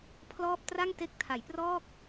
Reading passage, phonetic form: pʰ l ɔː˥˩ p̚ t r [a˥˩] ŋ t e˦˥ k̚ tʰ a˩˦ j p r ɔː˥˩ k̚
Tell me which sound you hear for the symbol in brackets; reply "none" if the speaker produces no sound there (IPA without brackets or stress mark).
a˥˩